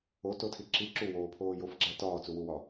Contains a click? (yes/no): yes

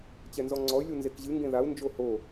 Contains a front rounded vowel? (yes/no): yes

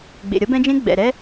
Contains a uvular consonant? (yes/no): no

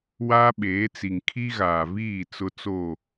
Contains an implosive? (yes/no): yes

